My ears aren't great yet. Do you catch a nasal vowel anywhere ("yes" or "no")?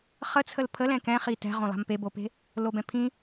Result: yes